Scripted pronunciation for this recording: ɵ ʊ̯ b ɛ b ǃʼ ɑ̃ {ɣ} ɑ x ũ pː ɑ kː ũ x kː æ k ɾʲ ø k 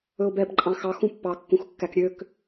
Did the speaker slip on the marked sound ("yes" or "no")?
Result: yes